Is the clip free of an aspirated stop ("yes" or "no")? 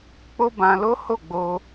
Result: yes